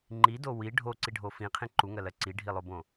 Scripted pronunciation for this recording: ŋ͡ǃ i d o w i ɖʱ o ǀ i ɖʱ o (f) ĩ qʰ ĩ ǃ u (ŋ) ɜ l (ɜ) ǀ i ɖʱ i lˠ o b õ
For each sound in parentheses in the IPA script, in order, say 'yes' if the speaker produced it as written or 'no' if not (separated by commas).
yes, yes, yes